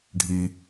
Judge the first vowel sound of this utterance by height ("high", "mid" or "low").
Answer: high